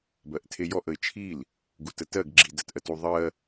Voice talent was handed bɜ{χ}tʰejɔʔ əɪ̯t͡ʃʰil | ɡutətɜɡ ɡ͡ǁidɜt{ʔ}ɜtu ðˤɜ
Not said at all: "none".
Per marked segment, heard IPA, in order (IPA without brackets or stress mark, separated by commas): ʔ, ʔ